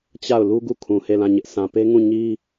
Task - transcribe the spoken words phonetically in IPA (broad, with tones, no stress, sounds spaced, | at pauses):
t͡ɕ a˦˨ ʊ̯ l u˦ ɡ u˦˨ kʰ ũ˨ h e˦˨ l ã˦˨ ɲ ɪ˦ ʔ s ã˨ p e˦ ŋ ũ˦˨ ɲ i˦